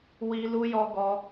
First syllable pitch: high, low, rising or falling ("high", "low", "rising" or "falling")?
high